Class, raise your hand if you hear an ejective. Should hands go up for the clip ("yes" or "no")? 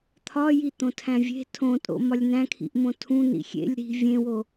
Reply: yes